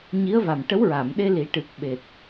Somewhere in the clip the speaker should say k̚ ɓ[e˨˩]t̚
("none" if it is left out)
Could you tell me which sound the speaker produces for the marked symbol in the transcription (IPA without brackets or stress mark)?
e˨˩